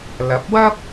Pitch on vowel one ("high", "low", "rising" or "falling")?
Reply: rising